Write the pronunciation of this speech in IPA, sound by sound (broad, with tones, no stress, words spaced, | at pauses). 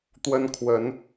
t̪wə˦nkʰwə˨˦n